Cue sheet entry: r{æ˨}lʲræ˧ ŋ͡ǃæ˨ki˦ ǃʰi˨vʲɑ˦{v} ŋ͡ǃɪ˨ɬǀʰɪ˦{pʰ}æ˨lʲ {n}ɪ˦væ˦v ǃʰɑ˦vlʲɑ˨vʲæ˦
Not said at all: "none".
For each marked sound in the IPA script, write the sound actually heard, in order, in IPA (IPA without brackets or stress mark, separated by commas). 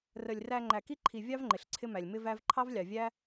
ə˨, v, m, m